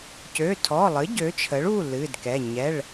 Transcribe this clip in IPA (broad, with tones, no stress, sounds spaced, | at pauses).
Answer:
c ø˩˧˩ tʰ ɔ˩˧˩ lˠ ɨ˩˥ ɟ ø˩˥ t͡ʃʰ ə˩˥ ɭ u˩˧˩ l ɨ˩˧˩ d k ɛ˩˧˩ ɲ ɛ˩˧˩ ɭ